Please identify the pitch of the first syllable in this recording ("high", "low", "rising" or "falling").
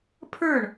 falling